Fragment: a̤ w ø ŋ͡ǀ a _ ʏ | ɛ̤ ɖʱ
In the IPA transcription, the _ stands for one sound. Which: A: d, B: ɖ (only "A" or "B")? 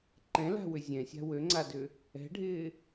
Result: A